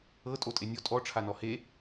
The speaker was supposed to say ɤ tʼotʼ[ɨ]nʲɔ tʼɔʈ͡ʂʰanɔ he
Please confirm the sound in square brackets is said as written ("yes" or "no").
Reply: no